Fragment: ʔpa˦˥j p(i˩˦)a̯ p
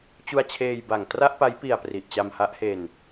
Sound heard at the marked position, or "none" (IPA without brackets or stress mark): i˨˩